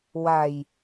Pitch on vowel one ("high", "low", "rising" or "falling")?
low